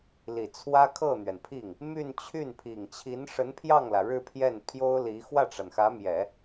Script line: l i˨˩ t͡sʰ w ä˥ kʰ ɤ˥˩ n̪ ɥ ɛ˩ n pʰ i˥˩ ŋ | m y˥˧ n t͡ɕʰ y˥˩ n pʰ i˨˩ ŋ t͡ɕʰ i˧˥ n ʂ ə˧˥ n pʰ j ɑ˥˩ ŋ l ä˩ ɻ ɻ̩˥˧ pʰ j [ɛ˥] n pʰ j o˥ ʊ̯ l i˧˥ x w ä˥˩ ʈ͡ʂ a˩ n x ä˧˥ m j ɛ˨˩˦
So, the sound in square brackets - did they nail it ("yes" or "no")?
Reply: no